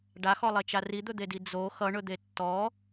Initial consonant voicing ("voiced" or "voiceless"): voiced